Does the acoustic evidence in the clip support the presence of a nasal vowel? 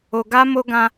yes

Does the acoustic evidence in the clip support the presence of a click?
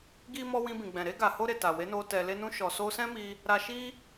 no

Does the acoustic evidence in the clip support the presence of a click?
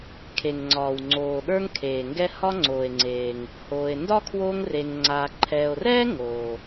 yes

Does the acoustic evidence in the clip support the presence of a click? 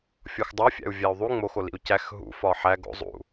no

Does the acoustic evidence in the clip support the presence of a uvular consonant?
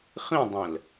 yes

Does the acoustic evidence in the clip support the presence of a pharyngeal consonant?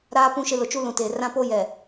no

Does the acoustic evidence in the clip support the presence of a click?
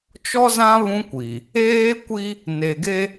no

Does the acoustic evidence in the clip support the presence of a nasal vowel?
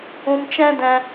yes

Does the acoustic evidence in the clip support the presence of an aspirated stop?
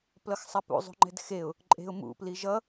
no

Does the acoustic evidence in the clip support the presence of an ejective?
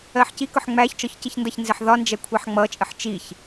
yes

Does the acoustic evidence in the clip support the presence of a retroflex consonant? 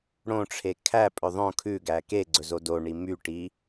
yes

